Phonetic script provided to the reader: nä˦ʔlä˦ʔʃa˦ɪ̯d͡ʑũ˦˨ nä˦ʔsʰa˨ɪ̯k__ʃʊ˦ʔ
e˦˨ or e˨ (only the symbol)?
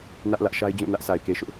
e˨